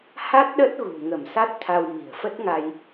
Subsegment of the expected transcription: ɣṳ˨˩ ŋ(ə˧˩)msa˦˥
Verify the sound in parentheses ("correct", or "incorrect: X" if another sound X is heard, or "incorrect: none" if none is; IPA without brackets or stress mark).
correct